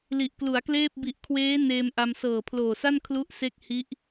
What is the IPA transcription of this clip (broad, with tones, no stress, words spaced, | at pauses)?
li˨˩ʔklu˩˦a̯kleː˥˩p̚ bi˨˩ʔkʰweː˦˥ neː˧mʔa˧m sɤː˨˩pʰloː˨˩sa˥˩n kʰlu˥˩ʔse˥˩k̚ hi˦˥ʔ